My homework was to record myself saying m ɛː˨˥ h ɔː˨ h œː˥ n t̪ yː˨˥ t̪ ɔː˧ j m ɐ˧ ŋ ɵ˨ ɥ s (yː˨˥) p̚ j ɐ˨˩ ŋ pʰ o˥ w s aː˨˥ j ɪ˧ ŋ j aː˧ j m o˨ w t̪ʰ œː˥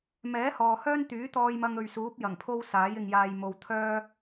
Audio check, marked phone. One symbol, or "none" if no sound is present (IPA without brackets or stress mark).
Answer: uː˨˥